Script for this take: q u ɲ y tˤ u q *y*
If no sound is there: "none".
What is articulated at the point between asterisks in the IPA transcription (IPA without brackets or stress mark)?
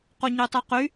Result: y